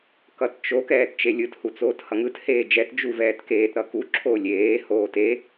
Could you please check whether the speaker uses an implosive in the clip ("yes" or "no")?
no